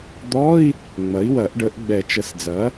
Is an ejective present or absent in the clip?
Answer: absent